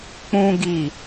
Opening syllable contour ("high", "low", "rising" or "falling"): high